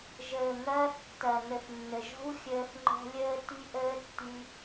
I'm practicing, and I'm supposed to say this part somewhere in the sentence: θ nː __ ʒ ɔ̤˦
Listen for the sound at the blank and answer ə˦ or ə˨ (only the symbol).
ə˨